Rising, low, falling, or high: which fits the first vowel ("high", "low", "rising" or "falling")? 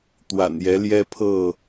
low